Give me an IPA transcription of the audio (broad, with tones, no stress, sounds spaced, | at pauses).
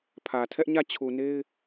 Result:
pʰ ä˨ tʰ ɛ˦ ʔ ɲ ä˦˨ t͡ɕʰ u˨ n e˦ ɪ̯